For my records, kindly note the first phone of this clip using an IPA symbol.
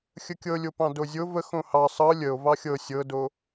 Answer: xʲ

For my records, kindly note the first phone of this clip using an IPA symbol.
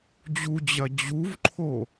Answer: d͡ʑ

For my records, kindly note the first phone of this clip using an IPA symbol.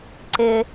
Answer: ǀ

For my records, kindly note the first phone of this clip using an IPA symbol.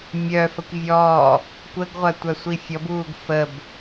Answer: mʲ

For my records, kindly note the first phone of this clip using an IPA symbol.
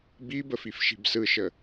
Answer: b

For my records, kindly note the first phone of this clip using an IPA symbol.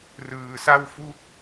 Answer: r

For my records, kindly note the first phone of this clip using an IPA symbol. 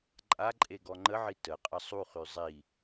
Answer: ǃʼ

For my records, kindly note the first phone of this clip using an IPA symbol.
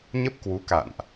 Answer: ɲ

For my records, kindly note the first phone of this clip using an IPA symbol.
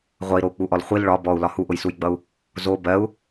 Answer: ʁʷ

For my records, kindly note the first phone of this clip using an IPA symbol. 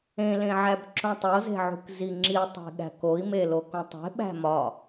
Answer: ẽ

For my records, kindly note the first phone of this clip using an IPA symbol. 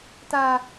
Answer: t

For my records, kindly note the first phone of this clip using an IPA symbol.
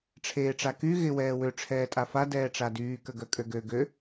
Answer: ʈ͡ʂʰ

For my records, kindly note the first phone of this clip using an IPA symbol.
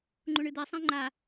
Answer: ŋ͡ǃ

